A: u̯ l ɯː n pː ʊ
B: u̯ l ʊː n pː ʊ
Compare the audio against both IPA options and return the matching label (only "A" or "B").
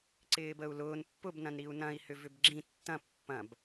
B